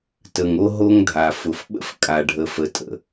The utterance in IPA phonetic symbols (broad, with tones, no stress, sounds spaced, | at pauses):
t ə˩ ŋ o˥ ɦ o˥ ŋ dʱ a˩ f ʊ˩ f ɓ ə̰˥ f kʼ a˩ ɖʱ ə˩ f ə˩ tʼ ə̰˩